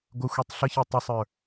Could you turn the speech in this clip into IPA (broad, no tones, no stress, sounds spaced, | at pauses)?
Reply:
ɡʷ ə xʷ i tˤ ɬ ə ç i tˤ ə sˤ ə˞